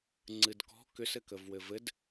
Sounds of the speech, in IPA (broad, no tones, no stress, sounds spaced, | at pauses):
ŋ͡ǀ ɨ d k ɔ̤ k ʏ s ɘ k ə v w ɘ v ɘ d